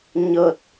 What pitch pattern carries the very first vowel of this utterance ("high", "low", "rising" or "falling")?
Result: low